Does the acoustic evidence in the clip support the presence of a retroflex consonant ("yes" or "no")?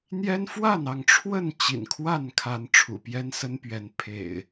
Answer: yes